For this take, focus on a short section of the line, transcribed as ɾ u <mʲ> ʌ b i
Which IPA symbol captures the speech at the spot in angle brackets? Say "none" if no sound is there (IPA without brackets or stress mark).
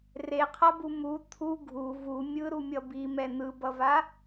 mʲ